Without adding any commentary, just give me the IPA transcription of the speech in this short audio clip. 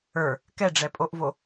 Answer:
ə˞ | kɛɖ͡ʐɛpʼoʔvo

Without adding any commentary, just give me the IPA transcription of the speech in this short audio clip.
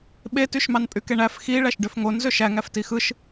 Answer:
ɓetyʃmɑn pʼykeɳæf xi ɭæʃɖøfŋon zøʃæŋæf tixɯʃ

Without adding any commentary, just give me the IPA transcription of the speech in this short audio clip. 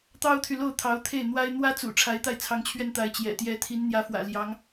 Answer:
t̪ɑ˥ʊ̯t̪ʰy˨lo˥˩ʊ̯ t̪ʰɑ˧˥ʊ̯t̪ʰe˥˩ɪ̯n̪wa˥ɪ̯ n̪wä˥t͡sṵ˨˩ ʈ͡ʂʰa˧˥ɪ̯t̪a˥˩ɪ̯t͡sʰɑ˧˥ŋt͡ɕʰɥɛ˥˩n t̪a˧˥ɪ̯t͡ɕjɛ̰˨˩ t̪jɛ˧˥ t̪ʰi˧˥nn̪jä˧˥fwä̰˨˩ ljɑ˧˥ŋ

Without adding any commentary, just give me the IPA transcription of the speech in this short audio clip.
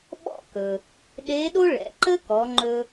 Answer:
ɓɔ̰˥kɵ˩ | ɗe˧˥ɗo˥ ɭɛ̰˩˧ǃə˥kɔ˩˧ŋ͡ǃɵ˧

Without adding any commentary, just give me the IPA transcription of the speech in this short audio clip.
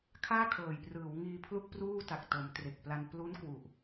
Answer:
kʰaː˥˩kʰɤː˨˩jprɯː˩˦wŋiː˧ pʰlu˥˩k̚pruː˥˩ta˨˩k̚to˩˦m tre˨˩k̚pla˧n plu˦˥n kwu˨˩ʔ

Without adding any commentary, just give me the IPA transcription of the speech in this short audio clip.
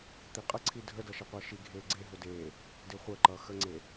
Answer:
t̪iqʼə ǀʰidʱədʌ ʃʌqʷʌːʃi ɡʱeːɡ͡ǀe ɦʊdeː | dɪːχʷəːǃʌː xəŋ͡ǀe

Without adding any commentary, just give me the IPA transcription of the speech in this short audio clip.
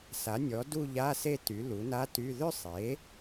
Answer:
sa˩˥nʲɔ˩˥ du˥˧ʎa˧˥˧se˥˧ ty˩˥ lu˩˥na˧˥˧ty˧˥˧ ðʏ˥˧sˤe˩˥

